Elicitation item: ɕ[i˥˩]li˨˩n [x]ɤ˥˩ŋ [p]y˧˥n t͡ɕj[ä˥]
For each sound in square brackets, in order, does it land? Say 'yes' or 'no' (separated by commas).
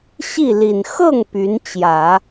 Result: yes, yes, yes, no